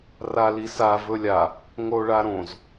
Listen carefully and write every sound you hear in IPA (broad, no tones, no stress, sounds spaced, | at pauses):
r a l i s a v ɵ lʲ a | ŋ o ɭ a ɾ õ z